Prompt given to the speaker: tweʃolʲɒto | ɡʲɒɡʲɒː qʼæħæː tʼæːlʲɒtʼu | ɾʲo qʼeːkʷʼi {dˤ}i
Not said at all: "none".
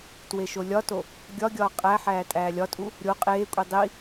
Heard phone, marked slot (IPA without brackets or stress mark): dˤ